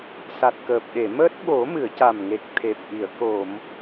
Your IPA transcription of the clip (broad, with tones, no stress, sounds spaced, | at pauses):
s a˨˩ t̚ k əː˨˩ p̚ ɗ e˨˩˨ m əː˦˥ t̚ ɓ o˨˩˦ m ɨ˨˩˨ ə̯ c a˨˩ m ŋ e˨˩ k̚ t̪ʰ e˨˩ p̚ ʔ i˨˩˨ ə̯ k o˨˩˨ m